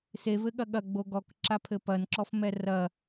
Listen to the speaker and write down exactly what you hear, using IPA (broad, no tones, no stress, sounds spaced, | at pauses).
s e v ɘ ɠ ɐ ɠ ɐ ɡ͡b o ɡ ɔ k ǁ a pʰ ɘ p ɐ n ǁ ɔ f m ɛ r ɐ